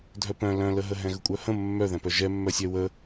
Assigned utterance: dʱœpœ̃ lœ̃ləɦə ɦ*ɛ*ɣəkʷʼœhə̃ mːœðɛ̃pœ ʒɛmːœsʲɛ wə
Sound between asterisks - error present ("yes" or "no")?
yes